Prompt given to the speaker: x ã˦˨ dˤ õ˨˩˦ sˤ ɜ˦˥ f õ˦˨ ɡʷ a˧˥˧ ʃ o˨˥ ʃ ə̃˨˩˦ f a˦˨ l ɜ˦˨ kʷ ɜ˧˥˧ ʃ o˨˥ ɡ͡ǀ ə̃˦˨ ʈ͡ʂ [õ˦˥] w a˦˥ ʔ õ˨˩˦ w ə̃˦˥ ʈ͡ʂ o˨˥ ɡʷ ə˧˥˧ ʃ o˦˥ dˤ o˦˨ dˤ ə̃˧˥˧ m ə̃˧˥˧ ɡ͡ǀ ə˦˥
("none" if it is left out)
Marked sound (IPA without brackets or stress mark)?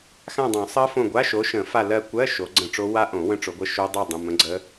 o˦˥